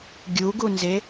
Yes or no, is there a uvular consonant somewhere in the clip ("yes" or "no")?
no